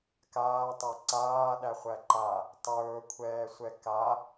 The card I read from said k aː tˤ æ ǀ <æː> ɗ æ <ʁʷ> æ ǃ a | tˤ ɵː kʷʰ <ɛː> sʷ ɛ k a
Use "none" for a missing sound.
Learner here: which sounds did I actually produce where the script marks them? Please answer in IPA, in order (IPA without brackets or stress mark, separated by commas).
aː, χʷ, ɛː